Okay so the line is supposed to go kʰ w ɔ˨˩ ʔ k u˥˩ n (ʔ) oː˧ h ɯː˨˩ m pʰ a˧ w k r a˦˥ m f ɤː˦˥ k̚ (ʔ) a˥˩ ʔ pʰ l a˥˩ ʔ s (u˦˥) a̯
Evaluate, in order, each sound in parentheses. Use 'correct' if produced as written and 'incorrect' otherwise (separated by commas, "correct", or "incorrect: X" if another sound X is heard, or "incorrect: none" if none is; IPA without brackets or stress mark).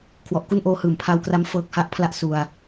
correct, incorrect: h, incorrect: u˧